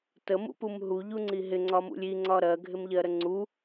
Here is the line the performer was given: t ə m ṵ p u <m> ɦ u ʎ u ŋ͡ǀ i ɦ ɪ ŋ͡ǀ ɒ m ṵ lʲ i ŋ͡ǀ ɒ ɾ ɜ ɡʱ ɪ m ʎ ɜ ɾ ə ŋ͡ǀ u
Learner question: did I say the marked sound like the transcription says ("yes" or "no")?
yes